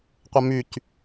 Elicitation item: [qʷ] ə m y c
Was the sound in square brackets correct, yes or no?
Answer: yes